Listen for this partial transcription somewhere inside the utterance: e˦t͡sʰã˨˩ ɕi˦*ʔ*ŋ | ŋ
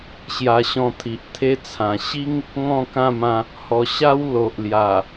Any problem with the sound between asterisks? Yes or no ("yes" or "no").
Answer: yes